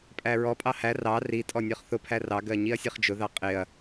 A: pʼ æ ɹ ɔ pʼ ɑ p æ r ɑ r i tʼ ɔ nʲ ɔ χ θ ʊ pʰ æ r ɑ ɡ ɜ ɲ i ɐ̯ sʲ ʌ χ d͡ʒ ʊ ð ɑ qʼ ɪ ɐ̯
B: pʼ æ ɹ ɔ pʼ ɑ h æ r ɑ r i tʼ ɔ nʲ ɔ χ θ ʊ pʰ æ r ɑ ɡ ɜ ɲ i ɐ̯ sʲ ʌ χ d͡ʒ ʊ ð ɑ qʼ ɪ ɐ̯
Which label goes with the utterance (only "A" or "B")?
B